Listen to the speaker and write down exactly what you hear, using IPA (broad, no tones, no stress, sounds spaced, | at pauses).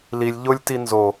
l i lʲ ʎ ʊ lʲ t i n z o